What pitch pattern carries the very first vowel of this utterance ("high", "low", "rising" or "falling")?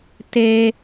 high